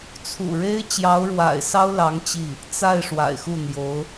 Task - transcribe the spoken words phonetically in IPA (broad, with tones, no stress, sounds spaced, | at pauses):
t͡sʰ ṵ˨˩ ɻ e˥ ɪ̯ t͡ɕ j ɑ˧˥ ʊ̯ ɻ w a̰˨˩ ɪ̯ s ɑ˥ ʊ̯ l ɑ˧˥ ŋ t͡ɕ i˥˩ | t͡s a˥˩ ɪ̯ ʂ w a̰˨˩ ɪ̯ x u˥˩ n̪ j o˧˥ ʊ̯